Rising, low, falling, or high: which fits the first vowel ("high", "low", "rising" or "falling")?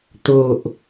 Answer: low